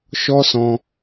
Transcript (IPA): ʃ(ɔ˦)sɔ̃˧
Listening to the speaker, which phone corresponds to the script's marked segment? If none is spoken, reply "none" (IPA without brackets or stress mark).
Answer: ɔ˦